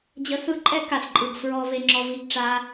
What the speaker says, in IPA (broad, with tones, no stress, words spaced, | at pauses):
d͡ʑə˧sɯ˦ǃʼɛ˦ ka˨sǃʼɯ˨ɡ fɹɔ˧ ve˧ŋ͡ǁɔ˧vi˦˨ɡʈ͡ʂa˦